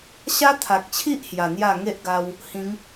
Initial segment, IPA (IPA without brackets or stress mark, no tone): ɕ